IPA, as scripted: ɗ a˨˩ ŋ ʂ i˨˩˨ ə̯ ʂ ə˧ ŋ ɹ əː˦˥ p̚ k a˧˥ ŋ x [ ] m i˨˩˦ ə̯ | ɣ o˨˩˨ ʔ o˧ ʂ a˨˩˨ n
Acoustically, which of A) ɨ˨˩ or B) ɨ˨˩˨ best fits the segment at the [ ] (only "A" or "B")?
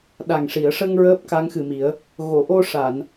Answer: A